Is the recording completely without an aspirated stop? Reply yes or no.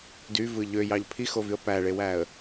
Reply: no